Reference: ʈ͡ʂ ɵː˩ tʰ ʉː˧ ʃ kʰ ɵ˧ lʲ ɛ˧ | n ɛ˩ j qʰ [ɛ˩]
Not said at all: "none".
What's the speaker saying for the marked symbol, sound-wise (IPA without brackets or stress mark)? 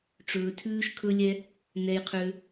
ø˩